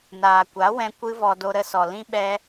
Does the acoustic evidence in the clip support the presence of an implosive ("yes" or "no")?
yes